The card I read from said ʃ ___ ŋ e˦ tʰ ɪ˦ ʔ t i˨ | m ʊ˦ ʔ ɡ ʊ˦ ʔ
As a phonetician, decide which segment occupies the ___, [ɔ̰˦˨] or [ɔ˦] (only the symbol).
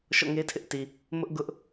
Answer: ɔ̰˦˨